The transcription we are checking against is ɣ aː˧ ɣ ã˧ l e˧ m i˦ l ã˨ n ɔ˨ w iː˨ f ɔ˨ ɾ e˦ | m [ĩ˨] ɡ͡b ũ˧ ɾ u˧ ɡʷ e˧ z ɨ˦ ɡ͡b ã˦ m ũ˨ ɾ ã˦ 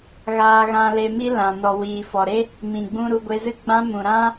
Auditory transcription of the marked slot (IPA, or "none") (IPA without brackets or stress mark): ĩ˨